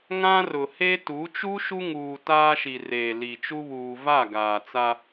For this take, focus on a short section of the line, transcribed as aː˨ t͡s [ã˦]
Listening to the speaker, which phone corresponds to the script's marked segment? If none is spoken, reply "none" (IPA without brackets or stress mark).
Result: a˦